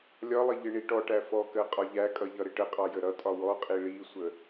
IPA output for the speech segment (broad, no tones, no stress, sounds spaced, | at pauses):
lʲ ɒ lˠ ɪ ʎ ɪ ɳ i ʈ ɔ ʈ æ f ɔ k ɜ qʼ ɒ ʎ æ kʼ ʌ ʎ ʌ ɾ ɪ ʈ ə qʼ ɑ j ə ɾ ʌ tʼ ɒ w ɔ qʼ i ɭ i sʷ ə